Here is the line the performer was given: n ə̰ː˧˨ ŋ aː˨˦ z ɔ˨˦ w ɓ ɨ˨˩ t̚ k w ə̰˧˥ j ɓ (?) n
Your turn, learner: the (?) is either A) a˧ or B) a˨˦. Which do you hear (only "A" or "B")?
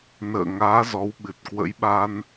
A